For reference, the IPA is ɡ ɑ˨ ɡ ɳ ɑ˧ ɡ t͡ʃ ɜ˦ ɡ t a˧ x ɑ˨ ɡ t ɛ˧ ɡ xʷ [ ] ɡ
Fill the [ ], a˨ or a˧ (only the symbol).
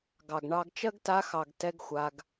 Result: a˧